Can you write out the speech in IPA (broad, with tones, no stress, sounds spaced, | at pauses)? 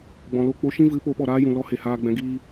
ɡ͡b ɔ̃˨ l o˦˨ k͡p o˦ ʃ ĩ˦ v ɨ˨˦ p o˨˦ ɓ ɔ˨ ɾ aː˦ j ũ˨ l ɔ˦ h e˨ h aː˧ ɡ͡b ɛ̃˨˦ ɡ iː˧